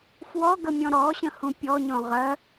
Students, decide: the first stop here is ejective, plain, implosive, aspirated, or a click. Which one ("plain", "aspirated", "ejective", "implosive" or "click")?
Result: plain